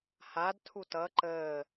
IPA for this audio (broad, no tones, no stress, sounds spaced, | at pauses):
h a d tʰ u t ʌ ǃ əː